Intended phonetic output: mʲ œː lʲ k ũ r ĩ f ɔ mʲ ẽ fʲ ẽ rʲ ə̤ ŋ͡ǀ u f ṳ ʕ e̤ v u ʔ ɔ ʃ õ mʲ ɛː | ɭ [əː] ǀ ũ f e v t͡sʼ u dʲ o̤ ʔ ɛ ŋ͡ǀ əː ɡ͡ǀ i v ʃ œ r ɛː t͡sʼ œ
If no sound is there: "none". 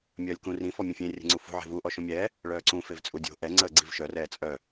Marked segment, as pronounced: œː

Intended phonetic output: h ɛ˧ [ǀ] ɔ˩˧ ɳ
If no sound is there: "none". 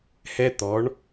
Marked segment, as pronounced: t̪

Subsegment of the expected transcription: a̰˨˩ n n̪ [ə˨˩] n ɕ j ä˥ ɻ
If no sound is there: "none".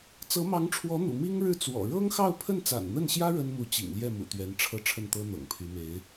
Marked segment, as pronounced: ə˥˩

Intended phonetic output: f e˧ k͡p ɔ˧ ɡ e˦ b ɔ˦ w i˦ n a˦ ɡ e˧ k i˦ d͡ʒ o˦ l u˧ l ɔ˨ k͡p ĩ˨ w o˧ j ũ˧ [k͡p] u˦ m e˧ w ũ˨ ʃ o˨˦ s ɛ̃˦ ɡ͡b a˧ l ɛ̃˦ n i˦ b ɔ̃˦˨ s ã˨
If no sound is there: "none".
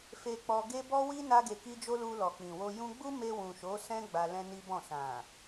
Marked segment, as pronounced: ɡ͡b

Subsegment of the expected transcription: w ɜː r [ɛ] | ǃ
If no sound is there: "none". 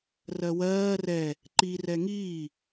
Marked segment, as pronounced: ɛ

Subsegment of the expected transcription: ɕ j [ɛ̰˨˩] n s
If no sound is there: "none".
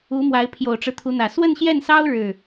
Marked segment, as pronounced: ɛ˥˩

